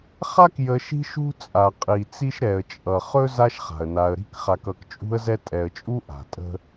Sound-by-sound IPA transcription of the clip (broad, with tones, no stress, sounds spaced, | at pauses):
χ a˥ k j ə˨ ʃ i̤˦ ʃ ṳ˦ t͡sʼ a˩ qʼ i˩ t͡s i˦ ʃ ɾ ɛ˩ ə̯ t͡ʃʼ ʌ˩ χ ɵ˥ z a˥ ʃ χ a̤˩ ə̯ n a˨ ə̯ ɾ i̤˦ k χ a˨ k ʌ˨ k t͡ʃʼ ṳ˦ ə̯ z ɛ˦ tʼ ɛ˨ ə̯ t͡ʃʼ u˥ ʔ a̤˩ tʼ ə̤˥